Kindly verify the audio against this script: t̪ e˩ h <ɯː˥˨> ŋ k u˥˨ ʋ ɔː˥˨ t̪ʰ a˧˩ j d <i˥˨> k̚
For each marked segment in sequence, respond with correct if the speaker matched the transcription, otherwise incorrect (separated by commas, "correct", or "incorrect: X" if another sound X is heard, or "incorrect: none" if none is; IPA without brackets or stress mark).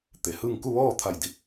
correct, incorrect: i˧˥